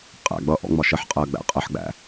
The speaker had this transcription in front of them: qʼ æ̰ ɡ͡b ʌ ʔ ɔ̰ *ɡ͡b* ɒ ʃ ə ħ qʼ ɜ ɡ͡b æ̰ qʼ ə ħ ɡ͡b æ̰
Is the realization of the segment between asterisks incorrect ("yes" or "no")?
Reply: yes